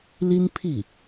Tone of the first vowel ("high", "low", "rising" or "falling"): high